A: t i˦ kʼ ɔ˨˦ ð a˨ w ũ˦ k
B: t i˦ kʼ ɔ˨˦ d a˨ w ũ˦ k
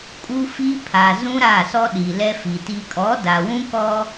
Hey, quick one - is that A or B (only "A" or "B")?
B